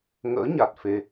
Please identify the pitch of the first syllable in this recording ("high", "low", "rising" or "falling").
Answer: rising